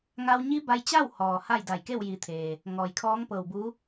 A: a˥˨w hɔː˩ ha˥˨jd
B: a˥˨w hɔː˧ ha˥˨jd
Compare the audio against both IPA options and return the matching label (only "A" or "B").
A